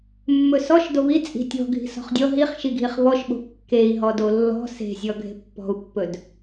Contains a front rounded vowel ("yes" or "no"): no